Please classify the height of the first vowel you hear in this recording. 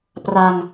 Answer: low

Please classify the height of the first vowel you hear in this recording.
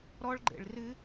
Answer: mid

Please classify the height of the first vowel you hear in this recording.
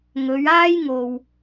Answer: mid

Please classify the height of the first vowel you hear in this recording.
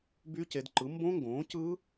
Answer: high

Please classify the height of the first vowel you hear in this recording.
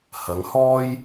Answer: low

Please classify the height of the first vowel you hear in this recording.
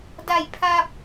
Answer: low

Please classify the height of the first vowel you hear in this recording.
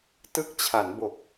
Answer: high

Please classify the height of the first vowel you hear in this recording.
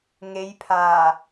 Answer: mid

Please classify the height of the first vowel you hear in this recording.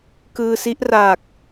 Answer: high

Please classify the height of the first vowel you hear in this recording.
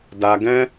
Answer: low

